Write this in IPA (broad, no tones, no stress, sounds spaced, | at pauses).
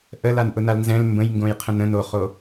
ʔ ə l a n ʔ ʊ n a l n z ɛ̃ l m b ə̃ j ŋ ɡ õ j qʰ ə̃ n ə̃ n o χ o